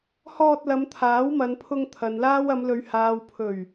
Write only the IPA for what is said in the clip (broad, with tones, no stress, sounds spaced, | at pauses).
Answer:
h ɔː˧ t̚ l ɐ˨˧ m t̪ʰ aː˨˥ w m ɐ˨˧ n pʰ ʊ˧ ŋ t̪ʰ ɐ˨ n l aː˥ w ɐ˨˧ m l ɵ˨˧ ɥ h aː˨ w pʰ ɵ˨˩ ɥ